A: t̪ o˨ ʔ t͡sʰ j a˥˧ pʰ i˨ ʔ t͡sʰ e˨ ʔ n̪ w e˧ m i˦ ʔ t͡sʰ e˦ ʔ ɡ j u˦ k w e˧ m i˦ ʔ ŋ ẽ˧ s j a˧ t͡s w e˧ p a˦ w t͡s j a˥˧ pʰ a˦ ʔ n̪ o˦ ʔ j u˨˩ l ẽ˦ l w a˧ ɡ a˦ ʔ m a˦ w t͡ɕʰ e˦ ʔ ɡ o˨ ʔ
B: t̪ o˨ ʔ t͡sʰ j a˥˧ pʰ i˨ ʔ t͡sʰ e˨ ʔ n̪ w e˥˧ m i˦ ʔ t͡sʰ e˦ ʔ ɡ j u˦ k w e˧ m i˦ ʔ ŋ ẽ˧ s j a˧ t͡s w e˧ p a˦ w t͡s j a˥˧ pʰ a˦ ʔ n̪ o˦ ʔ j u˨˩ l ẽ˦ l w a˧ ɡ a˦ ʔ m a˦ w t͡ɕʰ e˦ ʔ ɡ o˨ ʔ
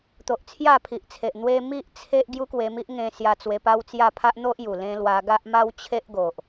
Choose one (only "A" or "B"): A